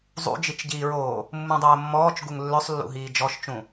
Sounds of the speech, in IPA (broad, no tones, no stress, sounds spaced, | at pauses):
zˤ ṵ d͡ʒ i t͡ʃ ɟ iː ɹ oː | mː ũ dˤ oː mː ɔː t͡ʃ ɡ u ŋ lː ø sˤ lː ṵ ɦ iː d͡ʒ ɔ ʃ t͡ʃ ũ